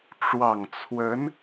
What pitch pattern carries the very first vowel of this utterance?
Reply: low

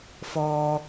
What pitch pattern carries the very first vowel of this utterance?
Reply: high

